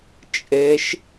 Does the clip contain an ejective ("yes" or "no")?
yes